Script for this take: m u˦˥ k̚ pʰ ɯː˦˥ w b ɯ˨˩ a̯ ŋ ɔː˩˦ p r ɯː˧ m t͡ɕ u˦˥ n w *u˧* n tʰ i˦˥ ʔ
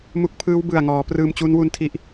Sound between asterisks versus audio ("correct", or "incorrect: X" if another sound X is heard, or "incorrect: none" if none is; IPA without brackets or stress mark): correct